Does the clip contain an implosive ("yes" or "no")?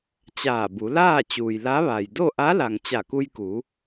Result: no